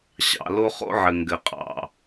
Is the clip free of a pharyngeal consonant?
no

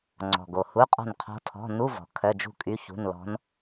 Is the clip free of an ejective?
no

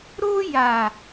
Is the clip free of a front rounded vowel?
yes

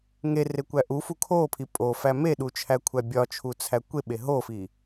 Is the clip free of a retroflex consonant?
yes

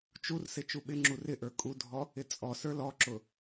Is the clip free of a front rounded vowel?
yes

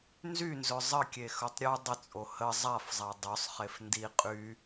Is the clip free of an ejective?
no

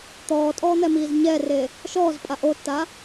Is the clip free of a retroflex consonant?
yes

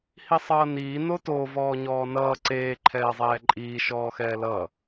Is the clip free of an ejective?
no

